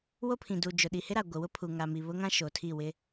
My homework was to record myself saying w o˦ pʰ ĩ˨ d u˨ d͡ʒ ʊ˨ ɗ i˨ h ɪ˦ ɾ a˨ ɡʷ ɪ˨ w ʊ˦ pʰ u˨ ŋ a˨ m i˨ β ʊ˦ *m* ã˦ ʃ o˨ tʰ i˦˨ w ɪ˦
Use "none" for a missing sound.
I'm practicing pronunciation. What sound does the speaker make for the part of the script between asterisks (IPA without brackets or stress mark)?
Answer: ŋ